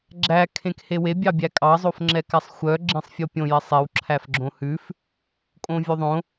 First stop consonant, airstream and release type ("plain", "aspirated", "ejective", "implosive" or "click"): click